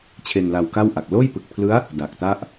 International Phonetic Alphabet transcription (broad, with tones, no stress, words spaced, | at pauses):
t͡ɕʰe˧nla˧wka˥˩wʔa˨˩k̚ loː˥˩jpɯ˨˩k̚pʰlɯ˦˥a̯ | da˨˩k̚ta˥˩ʔ